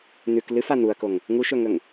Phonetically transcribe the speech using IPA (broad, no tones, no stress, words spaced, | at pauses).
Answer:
n̪ʉk lɨfa n̪uɐ̯koŋ | ŋuʃɵŋɵŋ